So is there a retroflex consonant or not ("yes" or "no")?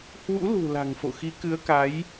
no